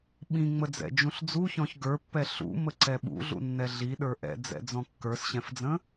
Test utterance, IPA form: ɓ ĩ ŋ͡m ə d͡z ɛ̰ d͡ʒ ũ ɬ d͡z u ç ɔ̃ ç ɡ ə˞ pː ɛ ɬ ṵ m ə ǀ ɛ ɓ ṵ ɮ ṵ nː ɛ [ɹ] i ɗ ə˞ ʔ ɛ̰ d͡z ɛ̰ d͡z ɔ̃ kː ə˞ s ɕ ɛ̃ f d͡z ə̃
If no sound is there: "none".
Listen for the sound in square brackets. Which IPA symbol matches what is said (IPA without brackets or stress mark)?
ɮ